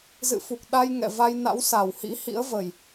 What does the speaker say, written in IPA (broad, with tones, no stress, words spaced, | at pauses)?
zɨ̰˧˨fu˨˩k̚ ɗa˧jŋɛ̰˧˨va˧j na̰˧˥wsa˨˩whḭ˧˥ hḭ˧˥ə̯və˨˩j